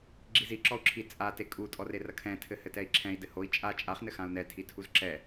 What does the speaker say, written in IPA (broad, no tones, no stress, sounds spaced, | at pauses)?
ɡ͡ǁ i z i ǁ ɔ u̯ ǁʰ i t͡sʼ a t e kʼ u tʼ ɔ r e r ɐ kʰ ɛ̃ tʰ ɘ h ɘ t ɛ i̯ ǁʰ ɛ̃ i̯ d ɘ h o i̯ t͡ʃʼ a t͡ʃʼ a χ n ɘ x ã u̯ n ɛ tʰ i tʰ u z ǁ ɛ